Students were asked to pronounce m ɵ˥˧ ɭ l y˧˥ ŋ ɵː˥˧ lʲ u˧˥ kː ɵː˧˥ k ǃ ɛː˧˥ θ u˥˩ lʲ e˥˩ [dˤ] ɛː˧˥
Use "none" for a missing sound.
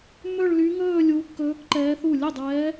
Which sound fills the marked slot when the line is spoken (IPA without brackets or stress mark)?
dˤ